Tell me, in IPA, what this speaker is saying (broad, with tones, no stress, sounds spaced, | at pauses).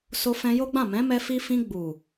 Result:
s o˧ f ɛ̃˧ j o˦ ɡ͡b ã˦˨ m ɛ̃˨˦ m ɛ˧ f i˧ f ĩ˧ ɡ͡b u˨